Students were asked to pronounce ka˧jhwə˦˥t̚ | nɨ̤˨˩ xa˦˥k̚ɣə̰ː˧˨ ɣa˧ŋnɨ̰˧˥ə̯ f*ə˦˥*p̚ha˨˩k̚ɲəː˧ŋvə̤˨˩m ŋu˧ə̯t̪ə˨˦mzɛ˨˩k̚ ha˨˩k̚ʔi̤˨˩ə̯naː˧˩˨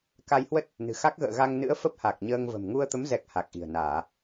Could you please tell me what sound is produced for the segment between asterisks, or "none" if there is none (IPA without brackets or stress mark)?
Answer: ə˦˥